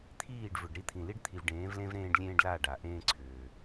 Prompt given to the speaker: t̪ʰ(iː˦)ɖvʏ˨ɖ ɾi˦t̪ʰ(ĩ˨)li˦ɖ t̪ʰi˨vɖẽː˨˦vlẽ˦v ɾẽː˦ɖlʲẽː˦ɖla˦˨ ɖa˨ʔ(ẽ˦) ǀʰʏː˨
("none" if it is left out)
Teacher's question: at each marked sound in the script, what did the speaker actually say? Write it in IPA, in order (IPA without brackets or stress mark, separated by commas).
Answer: iː˦˨, ĩ˨, ẽː˦